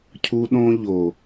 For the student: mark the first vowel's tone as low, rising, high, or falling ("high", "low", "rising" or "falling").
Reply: high